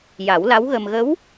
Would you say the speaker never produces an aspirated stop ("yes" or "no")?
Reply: yes